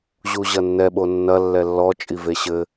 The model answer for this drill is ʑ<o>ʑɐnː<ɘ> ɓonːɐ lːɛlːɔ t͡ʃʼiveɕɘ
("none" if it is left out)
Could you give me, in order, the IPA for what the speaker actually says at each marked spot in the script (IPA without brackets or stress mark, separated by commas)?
u, ɛ